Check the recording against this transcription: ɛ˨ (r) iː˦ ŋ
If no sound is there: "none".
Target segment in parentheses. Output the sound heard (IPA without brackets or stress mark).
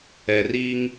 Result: r